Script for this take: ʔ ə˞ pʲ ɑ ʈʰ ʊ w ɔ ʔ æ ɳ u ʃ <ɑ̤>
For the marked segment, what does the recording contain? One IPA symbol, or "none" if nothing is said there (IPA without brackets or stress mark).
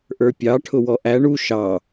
ɑ